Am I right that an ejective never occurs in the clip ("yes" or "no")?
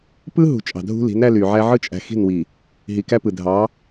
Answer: no